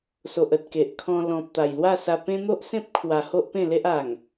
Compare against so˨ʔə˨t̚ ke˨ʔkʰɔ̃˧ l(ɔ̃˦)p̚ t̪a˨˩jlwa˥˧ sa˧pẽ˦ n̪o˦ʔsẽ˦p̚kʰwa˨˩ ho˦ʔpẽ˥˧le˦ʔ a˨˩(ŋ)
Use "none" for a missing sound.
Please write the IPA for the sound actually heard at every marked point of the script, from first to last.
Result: ɔ̃˨, ŋ

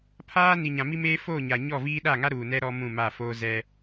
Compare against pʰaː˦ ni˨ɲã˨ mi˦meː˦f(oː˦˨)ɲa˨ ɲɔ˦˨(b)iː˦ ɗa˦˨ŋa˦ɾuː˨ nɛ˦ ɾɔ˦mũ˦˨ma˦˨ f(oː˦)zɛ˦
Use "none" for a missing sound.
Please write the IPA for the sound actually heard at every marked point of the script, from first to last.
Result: oː˦˨, v, oː˦

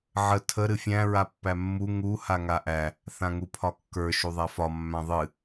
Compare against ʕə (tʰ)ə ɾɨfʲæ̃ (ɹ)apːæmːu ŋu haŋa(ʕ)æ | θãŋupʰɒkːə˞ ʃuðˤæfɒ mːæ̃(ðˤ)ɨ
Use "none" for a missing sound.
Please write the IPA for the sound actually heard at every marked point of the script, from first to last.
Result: tʰ, ɹ, ʔ, ðˤ

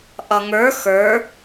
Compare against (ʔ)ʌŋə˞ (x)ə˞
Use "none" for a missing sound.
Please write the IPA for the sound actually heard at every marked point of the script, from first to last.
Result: ʔ, x

